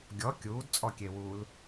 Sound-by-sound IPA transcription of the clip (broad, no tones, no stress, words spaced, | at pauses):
ɡʲɔ kʲuːdt͡sʼɔkʲewuːl